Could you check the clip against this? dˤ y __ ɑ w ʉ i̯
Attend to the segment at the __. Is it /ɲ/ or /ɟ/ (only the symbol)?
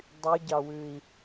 ɟ